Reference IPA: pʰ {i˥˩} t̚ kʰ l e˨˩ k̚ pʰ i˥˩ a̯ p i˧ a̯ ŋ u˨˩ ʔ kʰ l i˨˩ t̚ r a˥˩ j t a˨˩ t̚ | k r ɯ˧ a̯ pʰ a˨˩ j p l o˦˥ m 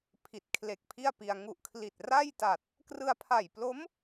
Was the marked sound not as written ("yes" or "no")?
yes